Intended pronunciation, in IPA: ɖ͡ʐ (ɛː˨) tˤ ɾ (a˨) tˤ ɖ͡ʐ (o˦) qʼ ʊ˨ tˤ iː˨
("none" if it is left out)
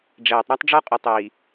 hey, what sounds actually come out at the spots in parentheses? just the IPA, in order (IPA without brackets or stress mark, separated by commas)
ɛː˨, a˦, ɔ˦